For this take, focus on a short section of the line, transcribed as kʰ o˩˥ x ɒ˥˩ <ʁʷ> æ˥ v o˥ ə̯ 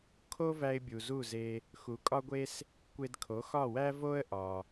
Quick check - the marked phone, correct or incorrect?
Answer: incorrect